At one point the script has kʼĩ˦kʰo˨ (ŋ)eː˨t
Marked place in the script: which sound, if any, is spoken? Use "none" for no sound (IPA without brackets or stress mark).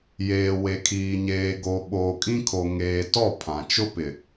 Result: ŋ